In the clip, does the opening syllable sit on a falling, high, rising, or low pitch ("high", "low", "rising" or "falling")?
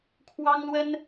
high